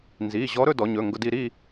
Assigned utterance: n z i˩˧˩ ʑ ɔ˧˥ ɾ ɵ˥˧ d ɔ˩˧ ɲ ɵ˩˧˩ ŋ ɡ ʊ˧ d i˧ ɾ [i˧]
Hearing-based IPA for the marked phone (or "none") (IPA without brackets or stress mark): i˥˧